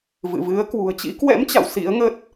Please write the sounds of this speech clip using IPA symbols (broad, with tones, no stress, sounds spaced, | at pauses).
v ɨ̰˧˨ v ɨ˨˦ ə̯ k w ṳ˨˩ ə̯ t͡ɕ ḭ˧˥ k w ɛ̰˧˥ m t͡ɕ a̰˧˨ w s ḭ˧˥ ə̯ ŋ ə˦˥ t̚